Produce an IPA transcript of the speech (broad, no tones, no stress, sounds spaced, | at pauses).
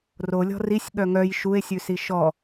r o lʲ ɔ̤ r i sʲ ɠ œ ŋ œ j ʃ u e̯ sʲ ʉ s i ʃ ɔ